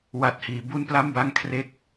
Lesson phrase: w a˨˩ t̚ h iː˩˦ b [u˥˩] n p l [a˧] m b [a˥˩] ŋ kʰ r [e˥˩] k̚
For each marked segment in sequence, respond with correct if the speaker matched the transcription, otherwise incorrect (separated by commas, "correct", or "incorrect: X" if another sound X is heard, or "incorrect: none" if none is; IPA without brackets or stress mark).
correct, incorrect: a˥˩, correct, correct